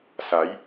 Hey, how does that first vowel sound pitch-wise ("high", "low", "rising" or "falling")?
rising